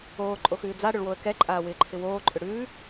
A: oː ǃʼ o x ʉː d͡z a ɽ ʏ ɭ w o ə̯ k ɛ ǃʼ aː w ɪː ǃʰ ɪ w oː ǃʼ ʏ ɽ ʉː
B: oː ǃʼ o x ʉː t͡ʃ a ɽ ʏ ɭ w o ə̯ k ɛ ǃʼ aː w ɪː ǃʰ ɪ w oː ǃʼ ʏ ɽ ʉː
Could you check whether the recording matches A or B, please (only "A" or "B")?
A